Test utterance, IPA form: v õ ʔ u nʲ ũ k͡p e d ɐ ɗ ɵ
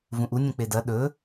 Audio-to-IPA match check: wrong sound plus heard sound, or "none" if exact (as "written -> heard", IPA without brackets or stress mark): õ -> ũ